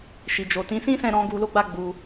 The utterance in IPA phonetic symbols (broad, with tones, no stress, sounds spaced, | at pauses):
ʃ i˨ d͡ʒ o˨ t ĩ˨˦ s ĩ˦ s ɛ̃˦˨ ɾ ɔ̃˧ ɡ u˧ l o˦ ɡ͡b a˦ ɡ͡b u˧